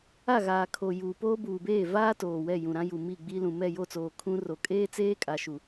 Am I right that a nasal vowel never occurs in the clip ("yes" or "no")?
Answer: no